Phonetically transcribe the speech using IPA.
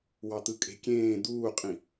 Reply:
w ɑ t̪ ɯ kʼ e̤ kʲ ẽː d̪ uː qʼ ĩ

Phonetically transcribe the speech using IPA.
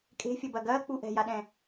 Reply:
kʼ e̤ fʲ ɐ b ɐ ɡ ɐː k͡p u ʔ ɛ̤ j a ɗ ɛ̃

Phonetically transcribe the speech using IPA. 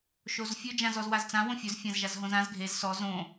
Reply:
ʃ o z fʲ ɵ d͡ʒ ã z ɔ z w a z t͡s ã w õ fʲ ɵ z fʲ ã z ʒ a z ɦ õ z ã z ɡʱ e z s ɔ z õ

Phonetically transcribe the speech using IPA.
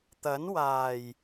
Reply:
t̪ ɐ˨˥ n w aː˨˩ j

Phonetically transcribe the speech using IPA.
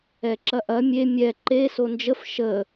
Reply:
ɛ ǁ ɐ ʔ ɐ mʲ e mʲ ɛ ǃ e s o n d͡ʒ ə f ʃ ə

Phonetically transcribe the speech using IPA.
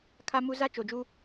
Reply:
kʰ a˦ m u˦ z a˦ t͡ʃ o˨ d͡ʒ u˦

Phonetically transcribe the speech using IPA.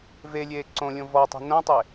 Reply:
v e lʲ eː ǀ õ lʲ õ v ɔ tˤ e̤ n õ tˤ e

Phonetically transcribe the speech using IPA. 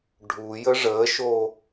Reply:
ɖʱ u j ə ʐ əː ʃ o

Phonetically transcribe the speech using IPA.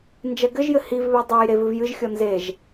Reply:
n d͡ʒ ɛ ɡ ɘ ʒ j ɘ h i v β e dˤ e j ɾ e v ɨ v j ɨ ʒ xʲ ɔ n z e ʒ

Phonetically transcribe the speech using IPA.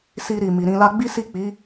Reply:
s i˧ ɾ i˨ m i˨ ɾ ĩ˧ l a˦ ɡ͡b i˦ s i˦˨ k͡p i˨˦

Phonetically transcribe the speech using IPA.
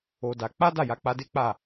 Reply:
o˧ d a˧ k͡p a˦ d a˦˨ j a˨˦ k͡p a˧ d e˦ k͡p a˦˨

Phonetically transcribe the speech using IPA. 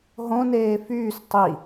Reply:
ɦ õ n eː f yː s tˤ i

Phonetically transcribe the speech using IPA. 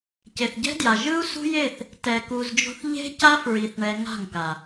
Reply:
c e˨ θ ɟ ɛ̤˦ d j a˨ ʒ ɯ˦ u̯ s ṳ˦ j e˦˨ θ | t ɛ˨ k u˨ z d͡ʒ o̤˧ θ ʎ e̤˦ c a˦ f ɹ i˨ θ ɳ ɛ˧ ŋ a̤˦˨ ŋ k a˨

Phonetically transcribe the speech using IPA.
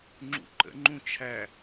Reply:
ŋ͡ǁ ṵ ǃ ə̰ ŋ͡ǃ ũ t͡ʃʰ æ

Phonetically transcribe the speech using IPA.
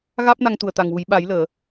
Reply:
ɣ aː˦˥ p̚ n a˧ ŋ t̪ u˨˩ ə̯ t̪ a˨˩ ŋ w u˨˩˦ j ɓ a˨˩˦ j l əː˨˩˨

